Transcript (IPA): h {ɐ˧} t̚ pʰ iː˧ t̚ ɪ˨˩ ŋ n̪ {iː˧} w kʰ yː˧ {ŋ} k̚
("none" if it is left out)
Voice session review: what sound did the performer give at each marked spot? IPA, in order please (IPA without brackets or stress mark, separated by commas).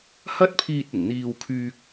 ɐ˥, iː˧, none